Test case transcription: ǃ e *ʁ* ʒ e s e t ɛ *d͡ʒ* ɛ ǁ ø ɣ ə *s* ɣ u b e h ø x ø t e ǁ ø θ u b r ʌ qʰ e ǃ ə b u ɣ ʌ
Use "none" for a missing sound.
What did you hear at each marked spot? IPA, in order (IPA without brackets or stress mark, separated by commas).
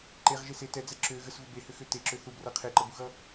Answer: ʁ, d͡z, s